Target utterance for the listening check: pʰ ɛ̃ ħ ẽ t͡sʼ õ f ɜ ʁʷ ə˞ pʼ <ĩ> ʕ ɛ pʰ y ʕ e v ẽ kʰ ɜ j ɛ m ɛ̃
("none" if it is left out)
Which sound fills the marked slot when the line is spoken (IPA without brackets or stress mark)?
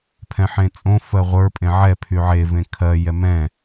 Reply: ẽ